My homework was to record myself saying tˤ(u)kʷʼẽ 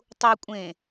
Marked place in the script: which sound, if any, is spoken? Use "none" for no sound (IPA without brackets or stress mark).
u